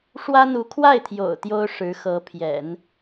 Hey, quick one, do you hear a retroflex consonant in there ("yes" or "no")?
yes